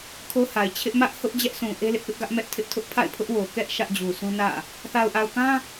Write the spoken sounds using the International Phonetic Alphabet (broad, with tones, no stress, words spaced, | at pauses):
kʰo˦ha˨ɪ̯ t͡ɕʰɪ˦ʔ mä˦ʔ hʊ˦ʔd͡ʑɛ˦ʔsũ˨ ʔe˦lɪ˦ʔpɪ˦ʔɡä˦ʔ mɛ˦ʔtʰɪ˦ʔtʰʊ˦ʔ pʰa̰˦˨ɪ̯pʰʊ˦ʔwo˨ kɛ˦ʔ ʃä˦ʔd͡ʑu˨sʰũ˦nä̰˦˨ | θa˨ʊ̯ʔa˨ʊ̯kã˦